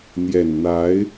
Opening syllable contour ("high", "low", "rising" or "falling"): low